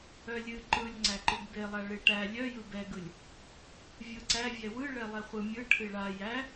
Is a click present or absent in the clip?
present